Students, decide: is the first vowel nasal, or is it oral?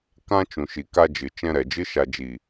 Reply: nasal